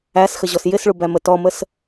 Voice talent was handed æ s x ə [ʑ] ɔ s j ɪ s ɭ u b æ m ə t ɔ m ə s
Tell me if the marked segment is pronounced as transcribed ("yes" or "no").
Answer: yes